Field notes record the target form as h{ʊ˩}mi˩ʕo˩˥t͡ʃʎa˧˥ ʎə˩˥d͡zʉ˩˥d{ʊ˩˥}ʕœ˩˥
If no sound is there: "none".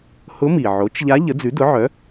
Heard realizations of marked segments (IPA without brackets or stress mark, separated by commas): ʊ˧˥, ʊ˩˥